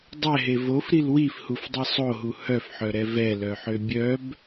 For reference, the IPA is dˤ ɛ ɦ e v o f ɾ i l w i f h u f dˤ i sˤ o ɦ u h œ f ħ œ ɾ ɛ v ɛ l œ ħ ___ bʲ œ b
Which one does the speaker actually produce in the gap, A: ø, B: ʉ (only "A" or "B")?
A